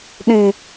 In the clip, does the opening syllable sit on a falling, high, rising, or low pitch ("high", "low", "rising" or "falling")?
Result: high